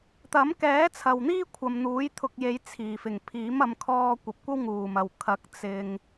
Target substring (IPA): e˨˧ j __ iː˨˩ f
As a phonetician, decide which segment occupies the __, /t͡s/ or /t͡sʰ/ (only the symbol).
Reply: t͡sʰ